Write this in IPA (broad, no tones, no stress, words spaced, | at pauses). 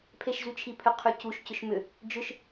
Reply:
pʰeʃzyt͡ʃʰipʰʏ qʰycuʃ cʏʃmʏ | d͡ʒʏʃ